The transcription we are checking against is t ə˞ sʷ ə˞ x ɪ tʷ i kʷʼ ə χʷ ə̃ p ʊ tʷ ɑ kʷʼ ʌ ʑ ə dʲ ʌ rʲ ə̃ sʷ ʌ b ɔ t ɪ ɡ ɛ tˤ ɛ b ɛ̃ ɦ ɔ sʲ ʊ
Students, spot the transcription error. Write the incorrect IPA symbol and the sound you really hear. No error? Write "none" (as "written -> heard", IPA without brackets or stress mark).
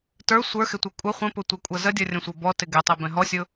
ʑ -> z